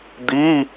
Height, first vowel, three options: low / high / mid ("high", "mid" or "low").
high